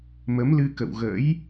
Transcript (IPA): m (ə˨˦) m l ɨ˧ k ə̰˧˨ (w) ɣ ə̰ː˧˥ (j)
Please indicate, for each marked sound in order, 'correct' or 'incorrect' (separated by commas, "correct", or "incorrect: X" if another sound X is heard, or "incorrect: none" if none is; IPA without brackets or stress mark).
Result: correct, correct, correct